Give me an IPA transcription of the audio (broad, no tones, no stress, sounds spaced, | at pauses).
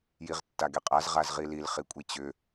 j i ʁ tː a ɡ e qʼ a z ʁ a z ʁ i l i l χ i kʷʼ i t͡ɕ ʏ